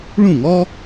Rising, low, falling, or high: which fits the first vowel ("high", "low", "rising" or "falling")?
falling